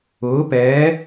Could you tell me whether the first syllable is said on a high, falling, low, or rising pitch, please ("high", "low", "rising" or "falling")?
rising